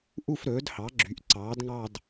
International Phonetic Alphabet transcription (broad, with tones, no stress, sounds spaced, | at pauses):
ʔ u˥˧ f ɾ ɵː˩˥ d h ɑ˩˥ ɡ͡ǁ y˩˥ ʔ ǀ ɑː˩˥ d ŋ ɑ˥˧ d